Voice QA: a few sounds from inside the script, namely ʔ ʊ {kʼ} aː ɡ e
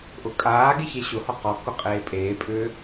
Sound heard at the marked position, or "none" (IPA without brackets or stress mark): kʼ